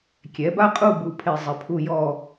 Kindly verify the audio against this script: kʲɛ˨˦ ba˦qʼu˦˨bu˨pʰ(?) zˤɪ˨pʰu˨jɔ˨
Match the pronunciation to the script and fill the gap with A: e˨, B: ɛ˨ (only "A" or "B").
A